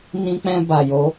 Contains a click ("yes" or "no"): no